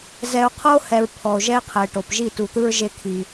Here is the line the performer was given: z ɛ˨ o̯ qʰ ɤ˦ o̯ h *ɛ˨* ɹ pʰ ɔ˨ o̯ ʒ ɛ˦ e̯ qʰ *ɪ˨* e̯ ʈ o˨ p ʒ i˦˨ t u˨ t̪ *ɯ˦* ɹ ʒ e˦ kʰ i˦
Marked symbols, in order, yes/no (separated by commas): yes, no, yes